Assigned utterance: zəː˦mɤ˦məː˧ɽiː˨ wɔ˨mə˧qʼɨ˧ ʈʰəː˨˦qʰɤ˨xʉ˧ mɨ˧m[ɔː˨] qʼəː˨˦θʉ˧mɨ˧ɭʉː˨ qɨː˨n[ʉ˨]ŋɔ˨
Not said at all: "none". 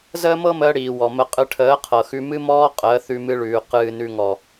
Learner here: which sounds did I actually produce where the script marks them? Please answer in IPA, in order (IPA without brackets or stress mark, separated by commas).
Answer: ɔː˧, ʉ˨